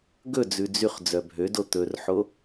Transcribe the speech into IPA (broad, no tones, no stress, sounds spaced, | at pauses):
ɡ ɵ d͡z ʉ d͡z y χ d͡z œ bʱ ø d o t̪ ɵ r ħ o